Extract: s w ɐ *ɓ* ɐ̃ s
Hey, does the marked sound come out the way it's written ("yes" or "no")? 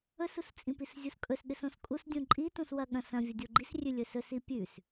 no